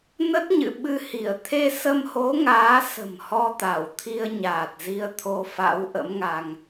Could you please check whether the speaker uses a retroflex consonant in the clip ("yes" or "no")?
no